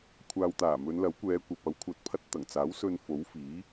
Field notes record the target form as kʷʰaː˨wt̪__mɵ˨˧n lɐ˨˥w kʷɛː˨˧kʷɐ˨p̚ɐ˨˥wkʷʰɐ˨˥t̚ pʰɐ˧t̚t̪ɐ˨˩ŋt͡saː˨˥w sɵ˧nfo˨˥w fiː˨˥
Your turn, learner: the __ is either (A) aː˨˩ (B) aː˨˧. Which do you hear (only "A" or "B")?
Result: A